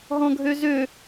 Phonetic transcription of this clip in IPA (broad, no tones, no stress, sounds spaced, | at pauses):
ɦ ɔ̃ ɡʱ ø z ø